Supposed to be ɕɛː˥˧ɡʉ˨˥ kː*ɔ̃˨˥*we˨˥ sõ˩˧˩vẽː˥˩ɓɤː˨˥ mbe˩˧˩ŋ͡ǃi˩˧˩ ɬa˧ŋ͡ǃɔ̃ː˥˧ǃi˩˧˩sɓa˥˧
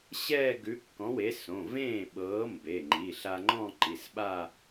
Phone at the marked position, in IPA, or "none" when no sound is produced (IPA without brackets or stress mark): ɔ̃˨˥